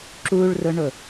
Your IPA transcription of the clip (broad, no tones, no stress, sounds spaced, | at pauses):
ǁ u ɭ r ʊ ɳ ʊ